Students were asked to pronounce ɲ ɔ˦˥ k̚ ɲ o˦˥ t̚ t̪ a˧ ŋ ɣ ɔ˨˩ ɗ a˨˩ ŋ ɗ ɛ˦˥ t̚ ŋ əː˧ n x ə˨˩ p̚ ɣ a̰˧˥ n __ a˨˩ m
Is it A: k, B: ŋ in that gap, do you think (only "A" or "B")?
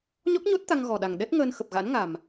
B